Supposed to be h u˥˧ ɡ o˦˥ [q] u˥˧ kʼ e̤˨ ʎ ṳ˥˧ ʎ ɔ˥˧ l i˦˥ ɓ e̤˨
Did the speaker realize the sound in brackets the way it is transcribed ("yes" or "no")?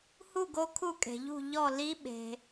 no